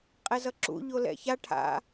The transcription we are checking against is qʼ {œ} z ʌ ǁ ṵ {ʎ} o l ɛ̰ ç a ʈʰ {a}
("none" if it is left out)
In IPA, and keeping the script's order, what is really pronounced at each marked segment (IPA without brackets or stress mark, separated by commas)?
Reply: ɛ, ʎ, a̰